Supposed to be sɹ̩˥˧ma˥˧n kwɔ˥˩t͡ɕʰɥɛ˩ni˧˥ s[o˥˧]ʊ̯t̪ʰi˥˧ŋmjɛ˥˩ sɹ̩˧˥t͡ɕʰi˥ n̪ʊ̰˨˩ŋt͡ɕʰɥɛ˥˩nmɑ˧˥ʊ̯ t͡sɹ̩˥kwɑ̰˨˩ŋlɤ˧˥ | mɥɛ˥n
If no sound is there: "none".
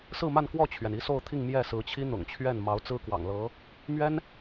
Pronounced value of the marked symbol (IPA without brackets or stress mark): o˥˧